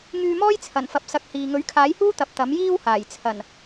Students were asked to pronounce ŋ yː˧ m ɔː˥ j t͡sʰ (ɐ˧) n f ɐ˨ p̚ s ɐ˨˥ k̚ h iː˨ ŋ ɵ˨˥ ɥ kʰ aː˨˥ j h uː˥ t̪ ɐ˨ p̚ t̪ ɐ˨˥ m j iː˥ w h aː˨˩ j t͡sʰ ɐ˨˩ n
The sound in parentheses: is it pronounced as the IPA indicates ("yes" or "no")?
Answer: no